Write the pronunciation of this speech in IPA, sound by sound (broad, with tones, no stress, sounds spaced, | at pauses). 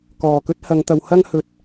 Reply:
k ɔː˨˩ k ɵ˥ t̚ h ɐ˨˧ ŋ t̪ ɐ˨˧ w h ɐ˥ ŋ h ɵ˨ t̚